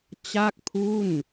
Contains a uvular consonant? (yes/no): no